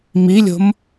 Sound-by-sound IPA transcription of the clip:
milʲo̤m

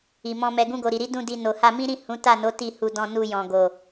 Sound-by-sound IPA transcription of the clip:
i˨mɔ̃˧mɛ˧ ɡũ˧ɡo˨ɾi˨ɾi˨˦ dũ˦˨di˧ no˨ha˧mĩ˦ɾĩ˦˨ hũ˨˦ ta˦˨no˨˦ ti˦˨hu˧dɔ̃˧ nu˧jɔ̃˨ɡo˨

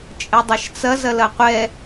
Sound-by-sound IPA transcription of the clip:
t͡ʃʼɛdˤɐʃt͡sɐ zɐlɐqʷɛ

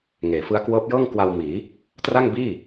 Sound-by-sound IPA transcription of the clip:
ŋeː˩˦fɯ˦˥a̯ kwɤː˦˥p̚jɤː˥˩ŋ kwa˧w miː˩˦ | tra˥˩ŋbiː˥˩

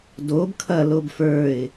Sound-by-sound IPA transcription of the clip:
dob kʰɐ lobfə˞ɪ̯

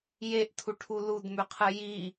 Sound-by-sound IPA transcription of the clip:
jeʔtʰuʈʰu ludmʉqʰɨ ji

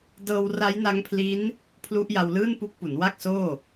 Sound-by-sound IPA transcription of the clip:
dɤː˧wra˦˥jna˦˥ŋpʰli˦˥n | pʰlu˦˥ʔja˧wlɯː˥˩npu˦˥k̚ pu˩˦nwa˥˩k̚soː˥˩

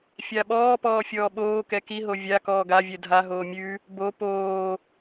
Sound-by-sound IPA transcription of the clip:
fʲaɓɔːpɔː fʲɔːɓoːkɛ kiɦo vʲa kɔːɡavʲɛ dʱaɦoː mʲʉ | bo poː

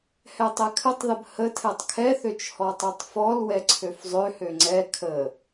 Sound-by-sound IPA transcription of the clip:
hɛtˤɛkʰətˤðəb hə tʰɛtˤkʰɛθøt͡ʃ hɔtˤɛtˤfɔlwɛ ǀʰøfzˤøhø ŋ͡ǀɛ kʰə

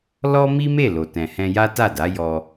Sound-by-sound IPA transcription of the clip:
lɔ˦mi˦me˦˨ lo˨tɛ̃˨hɛ̃˧ ja˦ta˦˨da˨˦ jɔ˧

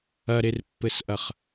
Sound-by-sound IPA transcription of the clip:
ɐɾerpːɘsʔɐχ

